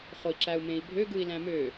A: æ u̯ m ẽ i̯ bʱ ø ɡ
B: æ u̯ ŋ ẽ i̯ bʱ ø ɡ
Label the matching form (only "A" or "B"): A